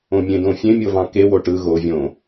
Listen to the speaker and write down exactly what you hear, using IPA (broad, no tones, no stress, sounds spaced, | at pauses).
õ mʲ ẽ d õ fʲ ẽ mʲ o v ɑ̃ k e w o ʈ ɯ ɣ o vʲ õ